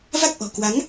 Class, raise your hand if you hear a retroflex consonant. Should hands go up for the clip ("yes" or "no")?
no